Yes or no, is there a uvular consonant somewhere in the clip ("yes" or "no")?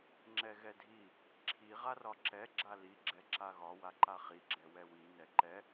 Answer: yes